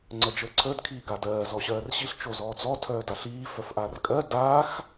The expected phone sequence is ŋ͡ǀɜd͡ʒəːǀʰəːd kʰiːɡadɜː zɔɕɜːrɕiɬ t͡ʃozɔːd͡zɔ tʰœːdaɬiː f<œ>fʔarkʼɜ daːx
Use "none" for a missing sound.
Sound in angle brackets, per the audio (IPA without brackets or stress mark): œ